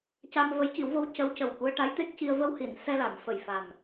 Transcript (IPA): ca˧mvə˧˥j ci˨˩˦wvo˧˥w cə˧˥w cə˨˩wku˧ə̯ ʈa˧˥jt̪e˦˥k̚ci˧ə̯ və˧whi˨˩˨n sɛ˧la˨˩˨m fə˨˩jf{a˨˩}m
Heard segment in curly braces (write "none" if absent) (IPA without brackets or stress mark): a˨˩